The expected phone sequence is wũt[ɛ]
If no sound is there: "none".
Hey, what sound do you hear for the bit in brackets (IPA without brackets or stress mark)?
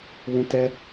ɛ